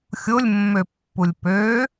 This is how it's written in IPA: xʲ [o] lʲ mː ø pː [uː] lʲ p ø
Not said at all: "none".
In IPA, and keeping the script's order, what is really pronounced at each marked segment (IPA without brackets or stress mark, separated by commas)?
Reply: o, u